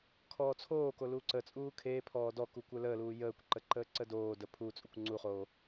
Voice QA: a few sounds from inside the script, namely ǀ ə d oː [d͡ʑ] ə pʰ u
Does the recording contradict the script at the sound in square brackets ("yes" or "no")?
yes